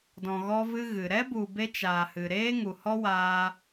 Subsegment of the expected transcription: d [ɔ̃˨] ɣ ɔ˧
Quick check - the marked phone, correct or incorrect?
correct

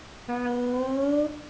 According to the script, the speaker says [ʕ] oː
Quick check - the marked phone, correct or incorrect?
correct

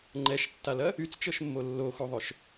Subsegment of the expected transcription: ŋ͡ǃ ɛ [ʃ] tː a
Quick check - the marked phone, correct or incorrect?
correct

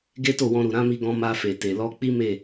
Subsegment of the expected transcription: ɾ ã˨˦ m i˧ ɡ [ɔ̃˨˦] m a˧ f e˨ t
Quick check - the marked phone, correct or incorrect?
incorrect: ɔ̃˧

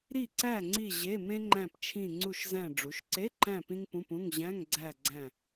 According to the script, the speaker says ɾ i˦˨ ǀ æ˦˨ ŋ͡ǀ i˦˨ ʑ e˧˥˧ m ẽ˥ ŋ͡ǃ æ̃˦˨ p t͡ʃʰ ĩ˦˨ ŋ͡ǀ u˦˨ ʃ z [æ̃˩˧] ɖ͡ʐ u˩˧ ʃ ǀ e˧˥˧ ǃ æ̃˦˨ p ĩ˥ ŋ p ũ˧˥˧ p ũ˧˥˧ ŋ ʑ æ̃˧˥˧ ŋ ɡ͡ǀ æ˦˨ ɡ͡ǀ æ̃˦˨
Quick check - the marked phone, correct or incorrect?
incorrect: æ̃˦˨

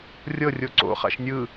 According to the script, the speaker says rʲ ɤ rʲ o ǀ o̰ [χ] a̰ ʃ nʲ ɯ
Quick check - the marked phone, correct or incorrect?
correct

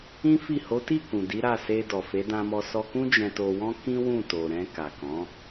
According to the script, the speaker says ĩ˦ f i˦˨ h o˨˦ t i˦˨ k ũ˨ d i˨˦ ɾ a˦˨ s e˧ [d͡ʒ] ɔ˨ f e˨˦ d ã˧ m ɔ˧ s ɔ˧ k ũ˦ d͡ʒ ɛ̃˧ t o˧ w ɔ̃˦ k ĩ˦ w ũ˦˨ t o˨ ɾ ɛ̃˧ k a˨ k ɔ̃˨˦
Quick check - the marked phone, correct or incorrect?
incorrect: d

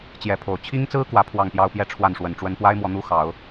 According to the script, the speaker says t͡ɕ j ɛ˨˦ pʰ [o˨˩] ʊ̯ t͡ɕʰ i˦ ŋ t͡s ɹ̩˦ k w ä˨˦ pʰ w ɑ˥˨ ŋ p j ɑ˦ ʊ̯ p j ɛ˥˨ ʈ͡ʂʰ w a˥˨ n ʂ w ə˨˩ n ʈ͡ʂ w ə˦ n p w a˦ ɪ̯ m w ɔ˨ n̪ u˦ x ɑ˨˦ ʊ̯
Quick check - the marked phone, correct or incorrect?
correct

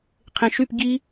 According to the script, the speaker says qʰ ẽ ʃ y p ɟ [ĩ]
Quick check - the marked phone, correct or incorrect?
incorrect: i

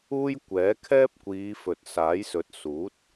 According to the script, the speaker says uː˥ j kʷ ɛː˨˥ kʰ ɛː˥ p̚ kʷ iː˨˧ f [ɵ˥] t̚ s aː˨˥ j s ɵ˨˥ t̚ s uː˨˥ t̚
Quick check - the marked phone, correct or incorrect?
incorrect: ɵ˨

